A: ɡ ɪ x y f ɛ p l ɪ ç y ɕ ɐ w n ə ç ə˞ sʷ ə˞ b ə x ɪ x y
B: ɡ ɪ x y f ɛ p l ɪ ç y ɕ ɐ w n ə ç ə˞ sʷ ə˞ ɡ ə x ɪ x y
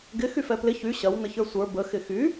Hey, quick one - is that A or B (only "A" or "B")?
A